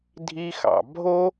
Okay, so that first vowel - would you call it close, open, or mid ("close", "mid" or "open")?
close